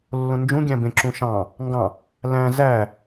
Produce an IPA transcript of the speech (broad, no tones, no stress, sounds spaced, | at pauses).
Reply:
lː õ n d͡ʒ ũ ɡʲ æ̃ b ẽ ǁ ũ ʃ ɑ̃ | ŋ ɡ ɑ̃ | l æ̃ z æ